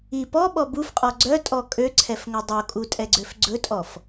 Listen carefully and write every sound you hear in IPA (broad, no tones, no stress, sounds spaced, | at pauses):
i p ɔ ɓ ɔ b u f qʼ ɔ ɡ͡ǀ œ tʼ ɔ kʼ ø ǀʰ ɛ f ŋ ɵ dˤ o kʼ u tʼ ɛ ɡ͡ǀ ø f ɡ͡ǀ ɵ tʼ ɔ f